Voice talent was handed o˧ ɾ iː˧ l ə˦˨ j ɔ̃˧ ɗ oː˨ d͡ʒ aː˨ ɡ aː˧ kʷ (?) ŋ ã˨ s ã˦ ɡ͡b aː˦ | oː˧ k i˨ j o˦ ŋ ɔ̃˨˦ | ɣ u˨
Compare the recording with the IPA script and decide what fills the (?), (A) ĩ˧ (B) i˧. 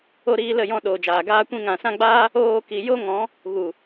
A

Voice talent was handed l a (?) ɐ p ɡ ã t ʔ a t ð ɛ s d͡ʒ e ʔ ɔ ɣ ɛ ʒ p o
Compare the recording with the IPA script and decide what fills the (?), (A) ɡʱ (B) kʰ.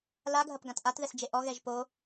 A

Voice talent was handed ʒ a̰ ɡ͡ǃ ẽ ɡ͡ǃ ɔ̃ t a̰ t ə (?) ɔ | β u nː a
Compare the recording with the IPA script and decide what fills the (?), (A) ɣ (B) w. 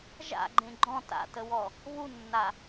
B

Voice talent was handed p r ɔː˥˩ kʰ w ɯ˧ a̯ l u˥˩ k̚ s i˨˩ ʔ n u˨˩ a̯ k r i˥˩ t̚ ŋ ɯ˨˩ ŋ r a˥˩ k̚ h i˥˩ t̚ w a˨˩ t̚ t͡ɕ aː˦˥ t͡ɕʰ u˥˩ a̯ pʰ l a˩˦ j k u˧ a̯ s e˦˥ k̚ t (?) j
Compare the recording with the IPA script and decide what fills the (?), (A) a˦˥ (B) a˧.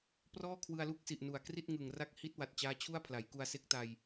B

